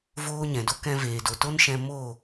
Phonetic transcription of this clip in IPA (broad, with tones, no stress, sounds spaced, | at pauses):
v oː˦ ɲ ɛ̃˨ d o˦ k ɛ̃˧ v eː˨ d o˨ t o˦ n ʃ ɛ̃˧ m o˦˨